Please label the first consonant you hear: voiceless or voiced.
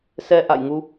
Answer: voiceless